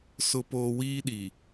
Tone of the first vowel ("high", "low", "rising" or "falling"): low